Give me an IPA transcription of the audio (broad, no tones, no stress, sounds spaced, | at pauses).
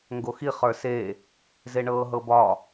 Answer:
ŋ ɡ o x i χ ə˞ s e | z e ɳ ɤː ɦ ɤ b ɒ